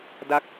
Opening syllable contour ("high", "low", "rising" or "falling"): falling